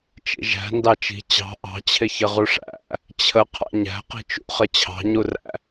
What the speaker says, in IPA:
t͡ʃḭʒæ̤ ndɑt͡ʃi̤ t͡ɕɑ̤ ʔɑ̤t͡ɕʰɪ çəʁuʂæ̰ | t͡ɕʰə qʰɑ̰ɲæ̤ qi̤t͡ʃṵχə t͡ɕʰɑ̤ɲuræ̰

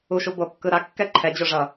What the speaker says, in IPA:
uʃu bokːɯ ɾakːɛ ǃʰɛd͡ʑoʐʌ

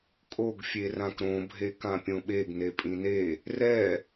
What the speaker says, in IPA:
kʼoɡ fʲerãkɾõ bʱekãpʲõɓeɡ nepʼĩne | rɛ

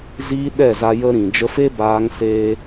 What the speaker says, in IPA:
ziː˦ɗɛ˦˨za˧ jə˦ɾĩ˨ d͡ʒə˧fe˦baː˧ŋ seː˦

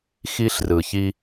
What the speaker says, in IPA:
xi˦ɬrɯ˨çi˦

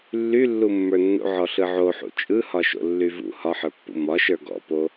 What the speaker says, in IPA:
lːylːumːə˞nːṵ ʕɔɬɯʕoħṵ t͡ʃʼɯhɒʃo̰lːy vṵ hɒħə˞pːṵ mɒʃə˞ ɡɔ̰po

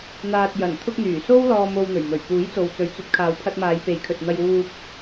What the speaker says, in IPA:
n̪aː˨t̚jɐ˨˩nt̪ʰʊ˧k̚ n̪yː˨˩so˥w lɔː˧mo˧wn̪ɵ˨˩ɥmɵ˨˩ɥ puː˨˥jt͡so˨wt͡sɵ˨˥ɥt͡sɵ˨˥t̚ kʰaː˨wpʰɐ˧t̚maː˨˧j pe˨˧jkʰɵ˨t̚n̪ɐ˧j wuː˧p̚

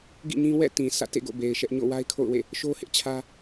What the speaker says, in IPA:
ɡḭ˦˨ɲĩ˦ wɛ̰˦˨tĩ˨ sʰä̰˦˨tḛ˦˨ɡo̰˦˨ be˨ɪ̯ʃɛ˦ʔ ɲo̰˦˨wa˦ɪ̯kʰo̰˦˨ʊ̯wḛ˦˨ | ʃo˦hɪ˦ʔt͡ɕʰä˦

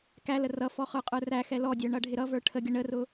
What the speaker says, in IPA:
kælə rʌfɔ χə˞qʼə˞ræxɛ lɔdʲə˞ ɳʌɖʱɪɾʌvə˞ ʈʰəɡʲə ɳərʊ

